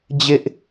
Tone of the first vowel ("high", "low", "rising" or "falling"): high